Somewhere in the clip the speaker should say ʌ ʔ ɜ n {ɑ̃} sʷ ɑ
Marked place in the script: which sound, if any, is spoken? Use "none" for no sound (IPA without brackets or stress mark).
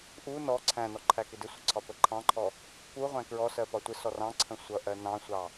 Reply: ɑ̃